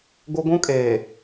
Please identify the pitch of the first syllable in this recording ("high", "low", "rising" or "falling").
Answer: high